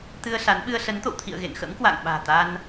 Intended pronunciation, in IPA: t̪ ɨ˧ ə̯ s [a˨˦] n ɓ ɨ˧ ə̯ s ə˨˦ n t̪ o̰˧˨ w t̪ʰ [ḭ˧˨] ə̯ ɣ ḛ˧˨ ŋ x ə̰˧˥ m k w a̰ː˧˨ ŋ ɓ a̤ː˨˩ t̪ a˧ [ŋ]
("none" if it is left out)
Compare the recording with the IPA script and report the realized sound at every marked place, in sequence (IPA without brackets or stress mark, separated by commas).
a˨˦, ḭ˧˨, n